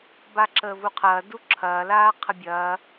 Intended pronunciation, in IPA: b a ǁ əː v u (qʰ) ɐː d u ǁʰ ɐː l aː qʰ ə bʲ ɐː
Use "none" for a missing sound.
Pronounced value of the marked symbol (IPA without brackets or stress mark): qʰ